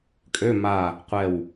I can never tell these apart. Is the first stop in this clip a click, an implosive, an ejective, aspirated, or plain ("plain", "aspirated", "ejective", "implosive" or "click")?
ejective